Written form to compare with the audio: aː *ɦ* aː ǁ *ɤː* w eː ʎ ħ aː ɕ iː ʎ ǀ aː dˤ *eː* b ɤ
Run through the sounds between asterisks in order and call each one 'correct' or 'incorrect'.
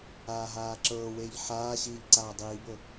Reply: correct, correct, incorrect: iː

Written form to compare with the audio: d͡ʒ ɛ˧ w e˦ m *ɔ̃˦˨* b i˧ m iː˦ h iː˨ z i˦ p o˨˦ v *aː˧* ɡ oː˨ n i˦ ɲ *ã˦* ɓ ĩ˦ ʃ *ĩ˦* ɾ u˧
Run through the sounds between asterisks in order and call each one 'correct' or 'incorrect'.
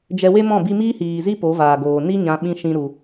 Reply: correct, incorrect: aː˨, incorrect: ã˧, correct

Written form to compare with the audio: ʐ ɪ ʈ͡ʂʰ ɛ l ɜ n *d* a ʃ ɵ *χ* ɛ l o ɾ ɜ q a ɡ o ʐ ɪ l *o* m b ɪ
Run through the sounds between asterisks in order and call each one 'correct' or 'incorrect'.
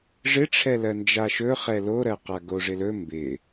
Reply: incorrect: d͡ʒ, correct, incorrect: ɵ

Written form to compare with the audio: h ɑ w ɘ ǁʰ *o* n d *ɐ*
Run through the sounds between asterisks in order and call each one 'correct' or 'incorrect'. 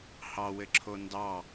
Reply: correct, incorrect: ɑ

